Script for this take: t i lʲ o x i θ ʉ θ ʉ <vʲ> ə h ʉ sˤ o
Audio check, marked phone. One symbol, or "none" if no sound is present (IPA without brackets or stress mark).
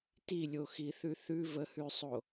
v